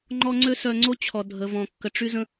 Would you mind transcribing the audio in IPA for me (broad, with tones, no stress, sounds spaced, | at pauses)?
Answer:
ŋ͡ǃ ɔ˦ ŋ͡ǀ ø˦ s œ˧ ŋ͡ǀ o˦ t͡ɕʰ ɔ˨ dʱ ə˨ v ɔ̃˨ kː ə˨ ʈ͡ʂ y˦ z ə̃˦